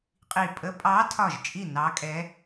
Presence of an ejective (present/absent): present